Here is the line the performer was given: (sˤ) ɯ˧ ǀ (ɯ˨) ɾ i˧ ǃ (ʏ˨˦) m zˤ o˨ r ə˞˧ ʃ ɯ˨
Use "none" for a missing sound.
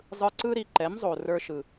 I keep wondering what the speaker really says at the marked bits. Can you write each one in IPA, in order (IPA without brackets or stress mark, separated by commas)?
zˤ, ɯ˦, ɛ˨˦